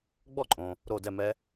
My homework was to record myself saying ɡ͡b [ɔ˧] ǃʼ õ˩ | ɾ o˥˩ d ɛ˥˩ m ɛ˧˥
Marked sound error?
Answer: yes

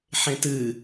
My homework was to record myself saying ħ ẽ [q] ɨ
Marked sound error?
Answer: yes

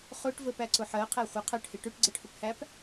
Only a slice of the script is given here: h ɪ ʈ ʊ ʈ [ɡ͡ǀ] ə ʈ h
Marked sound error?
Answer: no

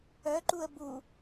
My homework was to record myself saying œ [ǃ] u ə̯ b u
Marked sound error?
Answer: no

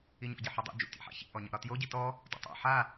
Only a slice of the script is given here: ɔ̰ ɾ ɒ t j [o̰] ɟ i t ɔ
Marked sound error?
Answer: yes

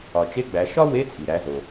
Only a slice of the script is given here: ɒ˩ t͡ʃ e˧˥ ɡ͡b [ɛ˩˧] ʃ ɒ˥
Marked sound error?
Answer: yes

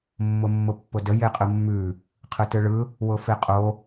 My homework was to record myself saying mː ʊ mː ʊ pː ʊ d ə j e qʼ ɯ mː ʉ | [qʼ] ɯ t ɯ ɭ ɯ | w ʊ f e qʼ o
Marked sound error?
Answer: yes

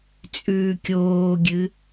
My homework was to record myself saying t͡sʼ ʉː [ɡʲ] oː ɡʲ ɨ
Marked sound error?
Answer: yes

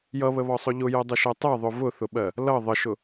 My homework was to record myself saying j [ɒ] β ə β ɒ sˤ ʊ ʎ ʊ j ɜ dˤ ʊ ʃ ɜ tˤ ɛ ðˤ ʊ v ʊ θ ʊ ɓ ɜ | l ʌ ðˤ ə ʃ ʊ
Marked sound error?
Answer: yes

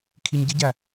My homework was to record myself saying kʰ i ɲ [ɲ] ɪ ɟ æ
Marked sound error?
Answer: yes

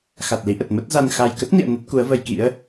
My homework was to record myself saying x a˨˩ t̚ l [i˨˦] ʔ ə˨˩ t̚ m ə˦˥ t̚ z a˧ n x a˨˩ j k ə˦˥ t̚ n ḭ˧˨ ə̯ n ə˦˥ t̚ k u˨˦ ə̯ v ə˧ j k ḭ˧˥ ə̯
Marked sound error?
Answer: no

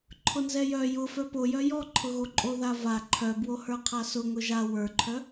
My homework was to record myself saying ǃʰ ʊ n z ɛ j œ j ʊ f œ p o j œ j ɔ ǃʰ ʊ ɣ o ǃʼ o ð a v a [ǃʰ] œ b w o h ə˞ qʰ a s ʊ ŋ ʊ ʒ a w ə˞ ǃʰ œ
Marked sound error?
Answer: no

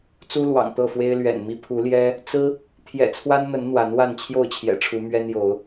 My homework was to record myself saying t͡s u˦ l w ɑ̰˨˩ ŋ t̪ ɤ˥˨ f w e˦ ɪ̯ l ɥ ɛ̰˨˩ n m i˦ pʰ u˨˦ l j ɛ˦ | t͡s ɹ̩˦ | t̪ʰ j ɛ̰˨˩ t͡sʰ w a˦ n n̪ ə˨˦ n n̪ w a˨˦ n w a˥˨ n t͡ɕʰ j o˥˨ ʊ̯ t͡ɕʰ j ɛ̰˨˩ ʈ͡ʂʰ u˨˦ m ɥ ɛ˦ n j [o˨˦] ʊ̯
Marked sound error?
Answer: no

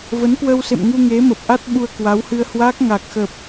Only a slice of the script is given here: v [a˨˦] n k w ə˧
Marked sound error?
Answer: yes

